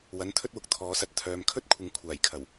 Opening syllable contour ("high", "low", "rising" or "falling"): rising